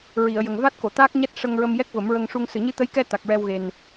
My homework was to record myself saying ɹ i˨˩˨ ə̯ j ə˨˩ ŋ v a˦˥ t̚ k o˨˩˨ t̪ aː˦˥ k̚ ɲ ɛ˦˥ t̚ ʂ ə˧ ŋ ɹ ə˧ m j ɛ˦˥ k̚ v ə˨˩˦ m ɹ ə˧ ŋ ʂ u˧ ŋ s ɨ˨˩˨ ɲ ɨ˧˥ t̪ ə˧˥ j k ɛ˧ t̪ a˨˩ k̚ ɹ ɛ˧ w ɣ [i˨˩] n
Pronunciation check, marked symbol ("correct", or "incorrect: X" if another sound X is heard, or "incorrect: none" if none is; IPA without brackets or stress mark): incorrect: e˨˩